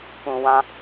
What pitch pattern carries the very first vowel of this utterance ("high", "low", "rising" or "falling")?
low